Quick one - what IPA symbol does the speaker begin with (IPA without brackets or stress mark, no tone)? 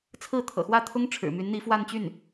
t͡sʰ